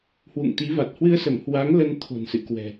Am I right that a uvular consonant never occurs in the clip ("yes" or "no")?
yes